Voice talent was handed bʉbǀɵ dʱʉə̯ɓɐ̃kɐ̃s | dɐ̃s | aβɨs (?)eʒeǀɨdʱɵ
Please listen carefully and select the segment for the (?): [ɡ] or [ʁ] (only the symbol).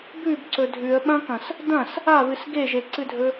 ɡ